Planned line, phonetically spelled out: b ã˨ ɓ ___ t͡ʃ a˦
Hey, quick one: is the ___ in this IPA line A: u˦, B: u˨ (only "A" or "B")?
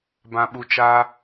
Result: B